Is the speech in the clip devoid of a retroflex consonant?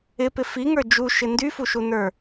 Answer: yes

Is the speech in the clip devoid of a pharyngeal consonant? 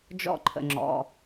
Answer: yes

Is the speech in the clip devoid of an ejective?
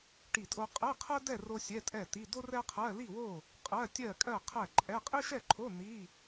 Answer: no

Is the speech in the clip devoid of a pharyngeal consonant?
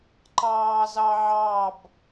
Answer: no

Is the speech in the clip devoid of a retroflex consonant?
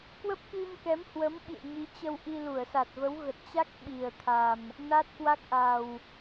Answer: yes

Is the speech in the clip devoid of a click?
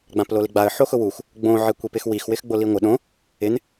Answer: yes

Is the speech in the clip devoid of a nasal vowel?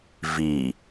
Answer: yes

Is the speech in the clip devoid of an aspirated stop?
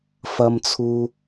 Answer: no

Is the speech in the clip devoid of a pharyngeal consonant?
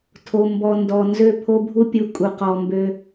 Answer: yes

